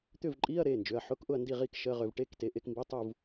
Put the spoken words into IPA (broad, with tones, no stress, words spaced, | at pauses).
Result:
t̪ʏ˥˨vǃʼi˧˥˧ɐ̯ ɾe˩˧˩nd͡ʒʏ˩˧˩ɐ̯ħʊ˧˥˧kʔʊ˥˨ɐ̯ ndi˥˨ʁi˥˨kʃə˧˥˧ʁʏ˧v ʈe˧˥˧kte˩˧˩ʔe˥˨kmbi˧˥˧ tˤu˥˨v